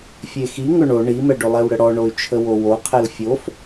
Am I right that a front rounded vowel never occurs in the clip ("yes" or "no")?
no